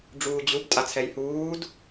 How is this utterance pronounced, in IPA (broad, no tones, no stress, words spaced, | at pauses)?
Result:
ɖ͡ʐuːd͡ʑub tʼat͡sʰɛjhuːd